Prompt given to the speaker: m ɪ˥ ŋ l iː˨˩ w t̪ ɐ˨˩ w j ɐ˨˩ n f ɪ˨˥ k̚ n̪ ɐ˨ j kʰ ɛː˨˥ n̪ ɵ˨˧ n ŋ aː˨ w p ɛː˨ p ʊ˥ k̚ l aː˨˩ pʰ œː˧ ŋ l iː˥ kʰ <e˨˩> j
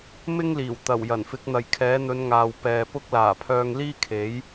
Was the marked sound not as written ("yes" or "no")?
yes